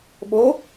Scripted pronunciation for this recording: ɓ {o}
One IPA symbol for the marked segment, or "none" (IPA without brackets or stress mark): o